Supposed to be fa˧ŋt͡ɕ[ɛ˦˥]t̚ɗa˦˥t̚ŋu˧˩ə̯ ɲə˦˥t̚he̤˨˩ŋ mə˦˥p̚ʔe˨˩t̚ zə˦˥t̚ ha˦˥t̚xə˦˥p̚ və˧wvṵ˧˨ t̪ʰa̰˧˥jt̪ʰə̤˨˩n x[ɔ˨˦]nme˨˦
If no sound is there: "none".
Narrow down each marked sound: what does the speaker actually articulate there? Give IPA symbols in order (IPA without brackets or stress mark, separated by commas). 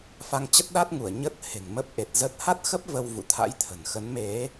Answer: ə˦˥, ə˨˦